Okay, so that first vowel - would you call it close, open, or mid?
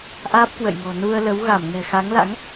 open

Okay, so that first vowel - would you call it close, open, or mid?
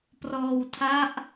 mid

